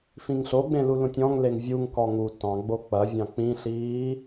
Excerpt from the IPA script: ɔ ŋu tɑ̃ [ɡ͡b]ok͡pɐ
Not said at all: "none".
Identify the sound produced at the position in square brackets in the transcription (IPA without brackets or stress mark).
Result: ɡ͡b